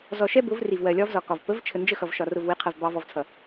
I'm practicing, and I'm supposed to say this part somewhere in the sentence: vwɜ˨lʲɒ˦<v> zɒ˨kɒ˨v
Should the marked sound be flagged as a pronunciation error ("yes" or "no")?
no